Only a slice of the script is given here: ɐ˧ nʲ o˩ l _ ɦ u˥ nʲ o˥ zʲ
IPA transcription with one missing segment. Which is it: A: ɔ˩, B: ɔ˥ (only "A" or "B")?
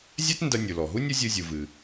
A